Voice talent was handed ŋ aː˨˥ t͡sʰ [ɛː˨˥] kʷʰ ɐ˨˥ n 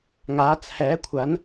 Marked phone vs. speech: correct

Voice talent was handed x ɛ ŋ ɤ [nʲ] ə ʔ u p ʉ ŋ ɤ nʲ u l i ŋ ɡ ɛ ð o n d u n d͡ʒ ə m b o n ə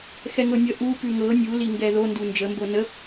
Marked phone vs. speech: correct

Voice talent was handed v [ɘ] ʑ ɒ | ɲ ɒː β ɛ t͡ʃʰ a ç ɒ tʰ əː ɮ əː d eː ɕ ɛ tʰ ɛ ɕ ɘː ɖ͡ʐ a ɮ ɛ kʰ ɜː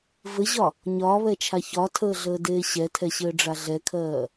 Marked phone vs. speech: correct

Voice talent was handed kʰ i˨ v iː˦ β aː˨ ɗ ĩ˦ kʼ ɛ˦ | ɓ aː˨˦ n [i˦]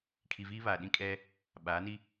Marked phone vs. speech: correct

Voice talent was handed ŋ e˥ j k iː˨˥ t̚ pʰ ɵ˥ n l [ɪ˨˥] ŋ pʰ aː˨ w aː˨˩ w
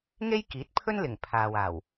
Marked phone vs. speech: incorrect: ɪ˨˩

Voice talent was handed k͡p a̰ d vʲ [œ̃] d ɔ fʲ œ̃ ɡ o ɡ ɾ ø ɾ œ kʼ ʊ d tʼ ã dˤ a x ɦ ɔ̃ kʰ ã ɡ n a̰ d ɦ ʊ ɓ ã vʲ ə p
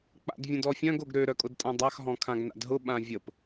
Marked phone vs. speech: incorrect: ə̃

